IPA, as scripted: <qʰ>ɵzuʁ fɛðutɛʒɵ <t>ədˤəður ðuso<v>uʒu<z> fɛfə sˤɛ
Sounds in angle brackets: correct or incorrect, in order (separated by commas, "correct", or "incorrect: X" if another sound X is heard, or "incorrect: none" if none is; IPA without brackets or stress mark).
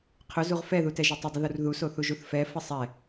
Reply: correct, incorrect: tˤ, incorrect: θ, incorrect: θ